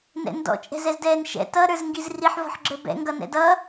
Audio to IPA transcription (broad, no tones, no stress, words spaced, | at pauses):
nɛ̰ndɔ̰ t͡ʃʼɛ̤zɛzdɛːnʃɛ̰ tʌ ɾə˞zŋɡizriħ vɔ̤ħɡ͡ǁə˞bɛ̰ ŋɡʌnɛ̰dʌ